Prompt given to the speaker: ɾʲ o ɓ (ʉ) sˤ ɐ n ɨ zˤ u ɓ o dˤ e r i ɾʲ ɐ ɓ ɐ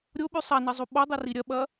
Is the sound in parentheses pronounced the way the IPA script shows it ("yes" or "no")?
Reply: yes